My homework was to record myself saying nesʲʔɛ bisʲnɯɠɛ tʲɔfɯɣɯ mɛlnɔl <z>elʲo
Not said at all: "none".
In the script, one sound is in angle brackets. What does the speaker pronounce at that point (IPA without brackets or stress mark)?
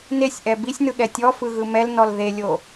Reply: ð